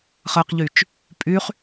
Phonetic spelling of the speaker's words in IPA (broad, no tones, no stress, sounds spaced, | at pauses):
χ ɜ q ʎ y t͡ʃ | pʼ y χ